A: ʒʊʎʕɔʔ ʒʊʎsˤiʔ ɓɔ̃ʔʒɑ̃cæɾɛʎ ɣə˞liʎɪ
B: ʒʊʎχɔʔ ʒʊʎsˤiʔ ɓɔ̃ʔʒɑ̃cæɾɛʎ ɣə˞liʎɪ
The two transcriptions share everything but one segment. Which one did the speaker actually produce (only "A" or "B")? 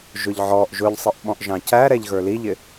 A